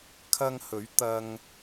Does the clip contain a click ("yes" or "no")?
no